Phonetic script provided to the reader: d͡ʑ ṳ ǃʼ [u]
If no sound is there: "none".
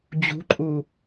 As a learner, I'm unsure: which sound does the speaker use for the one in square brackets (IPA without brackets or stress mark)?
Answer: u